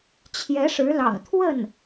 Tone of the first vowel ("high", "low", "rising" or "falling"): rising